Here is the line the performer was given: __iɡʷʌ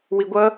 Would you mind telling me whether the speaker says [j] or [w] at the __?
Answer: w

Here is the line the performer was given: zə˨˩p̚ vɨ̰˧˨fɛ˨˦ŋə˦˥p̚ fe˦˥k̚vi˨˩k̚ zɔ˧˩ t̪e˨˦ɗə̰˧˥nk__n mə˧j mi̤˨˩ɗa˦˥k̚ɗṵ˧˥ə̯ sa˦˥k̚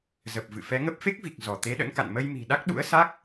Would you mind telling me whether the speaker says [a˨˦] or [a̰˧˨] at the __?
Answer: a̰˧˨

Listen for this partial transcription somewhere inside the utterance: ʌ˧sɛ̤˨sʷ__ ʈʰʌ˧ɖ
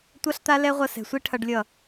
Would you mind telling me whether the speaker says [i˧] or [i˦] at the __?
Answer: i˦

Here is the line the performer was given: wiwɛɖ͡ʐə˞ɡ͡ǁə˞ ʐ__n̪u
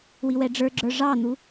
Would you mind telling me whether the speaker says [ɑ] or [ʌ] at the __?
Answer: ɑ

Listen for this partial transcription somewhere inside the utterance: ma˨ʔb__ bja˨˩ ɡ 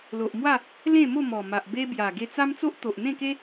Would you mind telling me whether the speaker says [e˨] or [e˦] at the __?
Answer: e˦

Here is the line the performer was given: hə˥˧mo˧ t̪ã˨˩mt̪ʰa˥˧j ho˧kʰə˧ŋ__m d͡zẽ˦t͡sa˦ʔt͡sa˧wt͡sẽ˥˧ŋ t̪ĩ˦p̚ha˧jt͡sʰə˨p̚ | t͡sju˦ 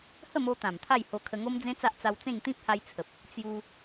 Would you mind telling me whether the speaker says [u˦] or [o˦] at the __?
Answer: o˦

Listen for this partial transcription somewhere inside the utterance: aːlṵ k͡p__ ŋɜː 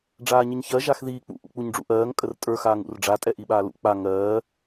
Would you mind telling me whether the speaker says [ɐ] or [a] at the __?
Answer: a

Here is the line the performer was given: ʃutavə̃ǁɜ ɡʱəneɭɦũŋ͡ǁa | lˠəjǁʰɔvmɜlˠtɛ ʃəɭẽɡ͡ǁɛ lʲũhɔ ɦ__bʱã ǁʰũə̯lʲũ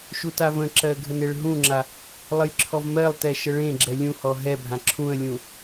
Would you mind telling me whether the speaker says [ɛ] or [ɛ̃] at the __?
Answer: ɛ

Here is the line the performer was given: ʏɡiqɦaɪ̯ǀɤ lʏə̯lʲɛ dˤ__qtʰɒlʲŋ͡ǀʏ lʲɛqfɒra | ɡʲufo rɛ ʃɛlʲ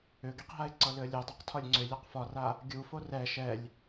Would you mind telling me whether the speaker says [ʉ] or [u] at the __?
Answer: u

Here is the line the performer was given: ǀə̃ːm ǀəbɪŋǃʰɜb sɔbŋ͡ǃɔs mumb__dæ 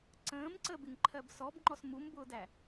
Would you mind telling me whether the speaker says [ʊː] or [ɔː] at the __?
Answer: ʊː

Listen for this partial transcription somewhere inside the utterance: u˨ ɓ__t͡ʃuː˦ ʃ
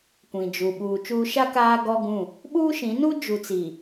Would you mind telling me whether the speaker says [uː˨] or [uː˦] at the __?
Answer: uː˨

